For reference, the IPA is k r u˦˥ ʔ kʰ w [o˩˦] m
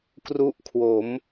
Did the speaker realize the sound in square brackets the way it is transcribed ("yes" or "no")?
yes